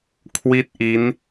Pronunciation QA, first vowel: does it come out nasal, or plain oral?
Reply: oral